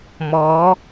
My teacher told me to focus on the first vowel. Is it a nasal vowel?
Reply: no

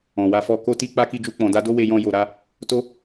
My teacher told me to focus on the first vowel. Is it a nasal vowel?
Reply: yes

